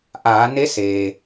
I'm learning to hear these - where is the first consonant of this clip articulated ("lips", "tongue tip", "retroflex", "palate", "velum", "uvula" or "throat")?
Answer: throat